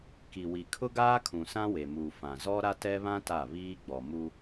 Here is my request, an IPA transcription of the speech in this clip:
k i˨ w i˨ kʰ ʊ˦ ɡ aː˦ kʰ ũ˨ s ã˦ w e˨ m uː˨ f ã˨ z ɔ˦ ɾ a˦ t ɛ˦ β ã˦ t a˦˨ β iː˦ ɡ͡b ɔ˨ m u˦

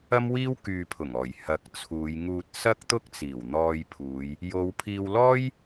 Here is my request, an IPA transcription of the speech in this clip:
ɐ˥ m w iː˥ w k yː˨ pʰ ʊ˨˩ ŋ ɔː˨˩ j h ɐ˨˥ k̚ t͡sʰ uː˨˧ j ŋ uː˧ t̚ s ɐ˥ k̚ t̪ ʊ˥ k̚ t͡s iː˨˩ w n̪ ɔː˧ j pʰ uː˨˧ j | j o˨˧ w pʰ iː˧ w l ɔː˥ j

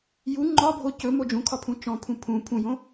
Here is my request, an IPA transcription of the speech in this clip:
j u ŋ͡ǃ ɒ bʱ o c ɵ m o d͡ʒ ũ kʰ ɒ pʰ ũ t͡ʃ ɔ̃ pʰ ũ pʰ ũ pʰ ũ j õ

